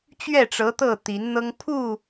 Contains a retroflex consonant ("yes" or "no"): yes